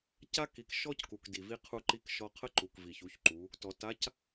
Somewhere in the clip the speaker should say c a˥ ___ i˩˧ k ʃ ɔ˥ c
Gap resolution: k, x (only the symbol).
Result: k